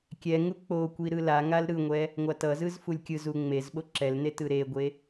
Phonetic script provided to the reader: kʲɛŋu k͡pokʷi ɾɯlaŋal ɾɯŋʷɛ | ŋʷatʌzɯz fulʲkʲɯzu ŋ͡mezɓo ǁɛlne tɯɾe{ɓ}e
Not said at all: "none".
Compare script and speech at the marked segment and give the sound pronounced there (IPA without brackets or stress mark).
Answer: ɡʷ